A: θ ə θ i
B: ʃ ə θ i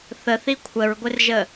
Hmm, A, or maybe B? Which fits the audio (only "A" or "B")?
A